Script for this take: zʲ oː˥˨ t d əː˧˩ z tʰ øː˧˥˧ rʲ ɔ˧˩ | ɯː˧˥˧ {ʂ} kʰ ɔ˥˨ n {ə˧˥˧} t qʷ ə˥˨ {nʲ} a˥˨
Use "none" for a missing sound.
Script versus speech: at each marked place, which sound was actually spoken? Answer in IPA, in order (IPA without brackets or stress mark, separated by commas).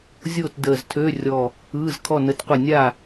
z, ə˧˥˧, nʲ